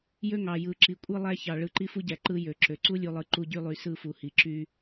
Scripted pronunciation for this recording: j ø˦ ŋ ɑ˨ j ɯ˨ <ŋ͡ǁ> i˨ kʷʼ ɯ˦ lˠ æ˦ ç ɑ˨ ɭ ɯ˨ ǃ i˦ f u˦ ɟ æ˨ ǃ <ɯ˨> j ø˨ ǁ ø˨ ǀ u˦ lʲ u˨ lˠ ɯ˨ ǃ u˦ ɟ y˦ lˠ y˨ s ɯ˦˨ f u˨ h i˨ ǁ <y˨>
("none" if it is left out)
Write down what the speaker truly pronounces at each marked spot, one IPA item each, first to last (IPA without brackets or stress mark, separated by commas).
ǁ, ɯ˦, y˦